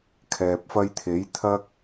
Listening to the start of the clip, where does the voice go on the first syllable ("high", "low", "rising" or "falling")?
low